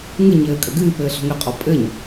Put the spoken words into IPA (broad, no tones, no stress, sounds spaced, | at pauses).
ŋ ɨ ɲ ɘː kʼ ɐ ɡ ɨː p ɘː ɬ ɔ̤ ŋ ɘ qʼ ɔ pʼ ɘ ɲ